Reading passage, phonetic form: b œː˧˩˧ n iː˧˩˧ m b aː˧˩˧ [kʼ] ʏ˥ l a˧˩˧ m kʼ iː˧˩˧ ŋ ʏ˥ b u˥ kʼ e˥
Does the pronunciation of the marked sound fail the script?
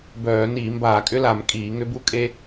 no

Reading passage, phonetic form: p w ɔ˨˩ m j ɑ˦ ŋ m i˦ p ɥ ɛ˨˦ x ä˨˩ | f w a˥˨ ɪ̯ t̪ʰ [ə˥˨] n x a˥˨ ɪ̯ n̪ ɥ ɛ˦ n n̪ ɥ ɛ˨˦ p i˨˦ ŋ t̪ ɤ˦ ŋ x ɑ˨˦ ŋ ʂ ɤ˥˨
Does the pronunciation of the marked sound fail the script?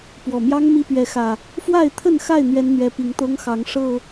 no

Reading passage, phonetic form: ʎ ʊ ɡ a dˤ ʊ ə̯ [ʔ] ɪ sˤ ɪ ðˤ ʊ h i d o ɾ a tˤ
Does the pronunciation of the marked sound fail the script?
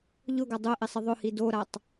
no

